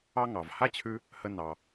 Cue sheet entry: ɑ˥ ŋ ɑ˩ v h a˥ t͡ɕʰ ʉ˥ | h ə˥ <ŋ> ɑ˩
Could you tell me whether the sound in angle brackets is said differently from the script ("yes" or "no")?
yes